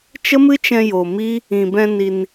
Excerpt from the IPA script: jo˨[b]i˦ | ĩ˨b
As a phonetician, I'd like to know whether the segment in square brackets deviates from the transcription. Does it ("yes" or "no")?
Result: yes